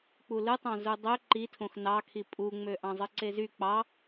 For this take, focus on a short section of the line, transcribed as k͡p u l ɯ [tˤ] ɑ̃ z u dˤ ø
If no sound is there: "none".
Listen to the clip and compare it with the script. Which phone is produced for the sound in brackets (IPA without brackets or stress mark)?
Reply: tˤ